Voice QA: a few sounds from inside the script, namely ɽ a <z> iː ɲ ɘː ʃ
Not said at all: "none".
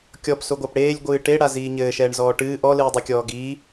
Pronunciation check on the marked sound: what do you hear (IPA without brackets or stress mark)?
z